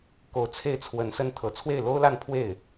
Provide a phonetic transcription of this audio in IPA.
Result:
k o˧˥ ʊ̯ t͡sʰ e˥˩ ɪ̯ t͡sʰ w ə˧˥ n s ə˥ n t̪ʰ ɤ˨˩ t͡sʰ w e˥˩ ɪ̯ l o˥ ʊ̯ l a˥˧ n pʰ w e˥˩ ɪ̯

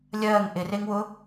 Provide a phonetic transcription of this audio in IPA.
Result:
lʲ ɜː ŋ ʔ ɪ r e ŋ w ʊ

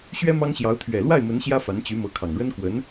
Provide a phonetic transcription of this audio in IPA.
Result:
ɕ ɥ ɛ˥ m ɑ˥ ŋ ɕ j ɑ˧˥ ʊ̯ t̪ʰ ɥ ɛ˨˩ l w a˥˩ ɪ̯ m ə˧˥ n ɕ j ä˥ f a˧˥ n t͡ɕ y˧˥ m ɤ˧˥ kʰ ɑ˨˩ ŋ ɻ ə˥ n k w ə˧˥ n

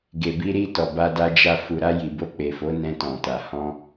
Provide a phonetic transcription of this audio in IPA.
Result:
ɡ e˨ b i˧ ɾ i˧ t ɔ˨ b a˧ d a˧ d͡ʒ a˧ f u˨ ɾ a˧ j i˨ b o˧ k͡p e˨ f o˨˦ n ɛ̃˧ t ɔ̃˨ t a˨ h ɔ̃˧

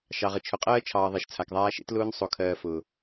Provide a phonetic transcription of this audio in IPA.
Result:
ʃ ɑ˨ ʁ ə˨ t͡ʃʰ ʊ˨ qʼ ɜː˦ t͡ʃʰ ɑː˨ ðˤ e˨ ʃ t͡sʰ a˨ k ðˤ aː˦ ʃ ḛ˦ t l ʊː˦ n sˤ o˨ kʰ ɜː˨ f ʊː˨

